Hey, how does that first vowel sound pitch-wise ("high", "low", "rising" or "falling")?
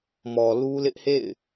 low